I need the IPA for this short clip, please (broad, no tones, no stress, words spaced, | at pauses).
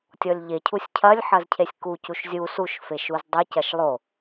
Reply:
tʲɔlʲʎecʰusʲ cʰɐlʲ ħɐzcʰesʲkucuʃ zʲu suʃfe ʃuzdˤecɐʃ lˠo